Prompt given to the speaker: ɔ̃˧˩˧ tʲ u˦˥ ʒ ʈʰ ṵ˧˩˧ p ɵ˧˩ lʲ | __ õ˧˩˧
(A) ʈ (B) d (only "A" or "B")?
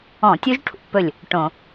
A